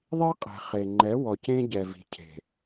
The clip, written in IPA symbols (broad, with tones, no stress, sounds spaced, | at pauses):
ðˤ i˦ qʼ ɛ̤˨ χ e˨ ŋ͡ǃ ɛ˨˦ w ɔ˨ c ẽ˦ ɟ ɛ˨ v i̤˨ cʰ e̤˨